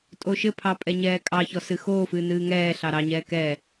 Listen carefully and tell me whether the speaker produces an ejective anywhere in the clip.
yes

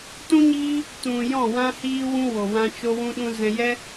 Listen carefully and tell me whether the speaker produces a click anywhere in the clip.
no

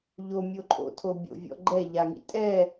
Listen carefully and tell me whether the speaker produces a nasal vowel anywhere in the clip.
no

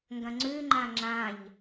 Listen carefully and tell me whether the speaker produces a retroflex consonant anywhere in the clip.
no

